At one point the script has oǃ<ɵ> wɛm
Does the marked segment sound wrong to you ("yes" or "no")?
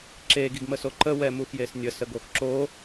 yes